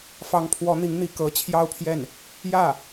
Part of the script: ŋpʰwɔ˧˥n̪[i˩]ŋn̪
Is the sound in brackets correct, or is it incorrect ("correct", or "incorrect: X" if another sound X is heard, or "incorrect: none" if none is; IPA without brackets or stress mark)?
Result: incorrect: i˧˥